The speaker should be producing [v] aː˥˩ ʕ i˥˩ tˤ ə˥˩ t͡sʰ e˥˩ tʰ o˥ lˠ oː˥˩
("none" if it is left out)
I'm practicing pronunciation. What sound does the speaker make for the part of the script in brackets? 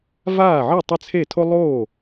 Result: v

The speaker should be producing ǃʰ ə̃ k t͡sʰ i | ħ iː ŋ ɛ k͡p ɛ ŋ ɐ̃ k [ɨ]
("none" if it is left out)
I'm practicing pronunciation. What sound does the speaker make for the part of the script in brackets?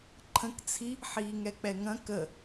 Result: ə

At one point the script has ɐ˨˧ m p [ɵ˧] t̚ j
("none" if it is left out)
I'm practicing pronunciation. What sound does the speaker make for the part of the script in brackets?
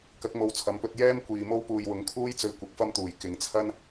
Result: ɵ˧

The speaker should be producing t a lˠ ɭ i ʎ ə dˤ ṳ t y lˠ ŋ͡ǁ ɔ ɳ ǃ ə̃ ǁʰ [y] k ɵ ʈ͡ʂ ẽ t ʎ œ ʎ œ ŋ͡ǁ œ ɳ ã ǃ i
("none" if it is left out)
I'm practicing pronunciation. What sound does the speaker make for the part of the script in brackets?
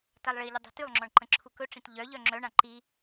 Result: u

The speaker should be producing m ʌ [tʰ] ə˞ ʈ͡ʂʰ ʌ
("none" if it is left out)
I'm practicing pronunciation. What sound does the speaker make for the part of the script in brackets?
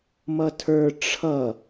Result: tʰ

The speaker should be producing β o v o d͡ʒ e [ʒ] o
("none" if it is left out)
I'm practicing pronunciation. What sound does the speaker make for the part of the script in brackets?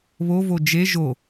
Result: ʒ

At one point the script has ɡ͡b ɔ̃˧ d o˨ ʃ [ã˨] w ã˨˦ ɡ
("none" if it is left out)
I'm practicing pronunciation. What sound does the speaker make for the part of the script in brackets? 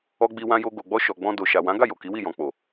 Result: a˨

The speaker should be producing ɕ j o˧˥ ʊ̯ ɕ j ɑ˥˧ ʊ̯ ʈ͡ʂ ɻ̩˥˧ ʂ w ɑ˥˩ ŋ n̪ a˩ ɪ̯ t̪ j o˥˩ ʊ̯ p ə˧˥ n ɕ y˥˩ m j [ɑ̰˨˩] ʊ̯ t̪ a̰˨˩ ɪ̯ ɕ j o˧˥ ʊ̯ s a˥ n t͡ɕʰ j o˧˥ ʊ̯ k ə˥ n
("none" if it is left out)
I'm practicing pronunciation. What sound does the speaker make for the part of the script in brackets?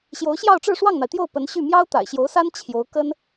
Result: ɑ˥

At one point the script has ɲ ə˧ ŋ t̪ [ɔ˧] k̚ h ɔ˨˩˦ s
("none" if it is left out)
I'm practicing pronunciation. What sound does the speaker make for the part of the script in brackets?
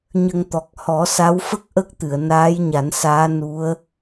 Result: ɔ˨˩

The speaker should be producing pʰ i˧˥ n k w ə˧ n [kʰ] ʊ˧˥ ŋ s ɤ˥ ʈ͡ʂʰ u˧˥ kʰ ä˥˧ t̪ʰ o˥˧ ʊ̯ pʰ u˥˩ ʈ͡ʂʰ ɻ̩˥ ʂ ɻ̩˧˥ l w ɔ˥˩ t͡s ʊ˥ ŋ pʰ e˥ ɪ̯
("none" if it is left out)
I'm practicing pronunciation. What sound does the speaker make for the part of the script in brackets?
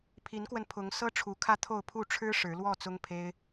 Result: pʰ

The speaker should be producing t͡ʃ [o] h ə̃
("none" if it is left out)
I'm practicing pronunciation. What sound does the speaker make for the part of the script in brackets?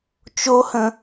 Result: o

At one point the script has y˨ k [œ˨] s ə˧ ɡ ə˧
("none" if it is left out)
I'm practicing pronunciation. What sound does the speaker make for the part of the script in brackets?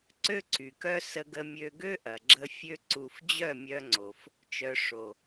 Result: œ˦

